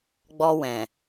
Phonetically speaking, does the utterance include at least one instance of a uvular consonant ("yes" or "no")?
no